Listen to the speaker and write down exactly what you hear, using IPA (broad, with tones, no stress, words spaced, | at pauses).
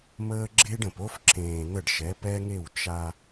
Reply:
məː˦ɡ͡ǁe˦ɖə̃˨p o˦fǁẽː˨ n̪ə˦˨ɖʃɛ˨˦pɛ˦ŋe˦˨w t͡ʃa˦